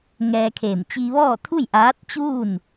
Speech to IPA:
ŋɛː˧kʰeː˧˩m t͡ɕi˧ʋɔː˥˨t̪ʰu˥˨j ʔaː˧˥t̚t͡ɕuː˥˨n

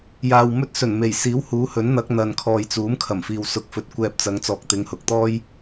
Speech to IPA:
jaː˨wmɵ˥t̚ sɵ˨˩nme˨˩jsiː˨˥w huː˨˥hɵ˨˥nn̪ɐ˨˥k̚ n̪ɐ˨n kʰɔː˨jt͡suː˨˥mkʰɐ˨˩mfiː˨w sʊ˧k̚fɵ˧t̚ kʷɛː˧p̚t͡sɐ˨˧ŋ t͡sɔː˨k̚t̪ɪ˨˧ŋhʊ˨˥k̚t̪ɔː˥j

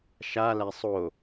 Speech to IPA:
ʃalæ sˤo

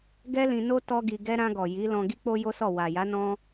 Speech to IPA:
ɡɛ˦lĩ˧ no˧ tɔ˦ɡi˧ɡɛ˦ ɾã˧ɡɔ˨ ji˨˦lɔ̃˧ ɡi˦k͡po˦jo˦sɔ˦˨ wa˨ ja˨˦nɔ̃˧

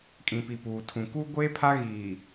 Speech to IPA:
kʼĩ˨pi˨puː˨tʰũ˨ kuː˦ɡʷeː˦pʰa˦ ɣiː˨

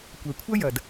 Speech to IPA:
kʷɛ˩kʷʰɐ˥jɐ˩d

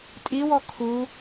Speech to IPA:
tʼiwɔ kʰu

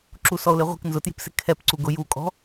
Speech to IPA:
ǁusɔo̯leʁʷi̤k nzʊtji̤psɪ kʰɛp ǀuɡʊ jukʼɔ̤

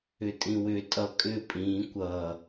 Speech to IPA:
ʏtʼĩwʏ tʼʌ kʼʏ pʼĩ kʷʌ

